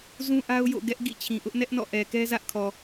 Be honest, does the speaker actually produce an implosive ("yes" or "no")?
no